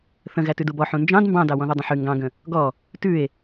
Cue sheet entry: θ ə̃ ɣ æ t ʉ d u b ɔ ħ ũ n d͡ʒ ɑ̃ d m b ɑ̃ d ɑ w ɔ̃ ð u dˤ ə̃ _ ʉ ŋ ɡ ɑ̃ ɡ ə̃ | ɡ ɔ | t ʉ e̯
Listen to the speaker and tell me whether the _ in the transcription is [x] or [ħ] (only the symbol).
ħ